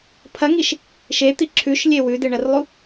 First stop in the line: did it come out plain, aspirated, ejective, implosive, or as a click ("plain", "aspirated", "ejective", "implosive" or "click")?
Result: aspirated